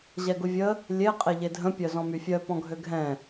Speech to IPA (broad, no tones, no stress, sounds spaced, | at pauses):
ʑ ɛ ɡ ʊ vʲ ə | lʲ e qʼ e ʎ e dʱ ə̃ pʲ œ z ɔ̃ m y fʲ œ p ɔ̃ ɡʱ ø ɡʱ ɛ̃